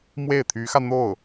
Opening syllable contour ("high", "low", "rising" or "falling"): falling